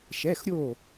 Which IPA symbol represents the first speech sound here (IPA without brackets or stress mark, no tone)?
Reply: ʃ